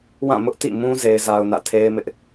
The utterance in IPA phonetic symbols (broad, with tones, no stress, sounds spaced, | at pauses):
w ã˦˨ m ʊ˦ ʔ t ḭ˦˨ m ũ˦ z e˦ ɪ̯ z a˦ ʊ̯ n ä̰˦˨ tʰ e˦ ɪ̯ m ɪ˦ ʔ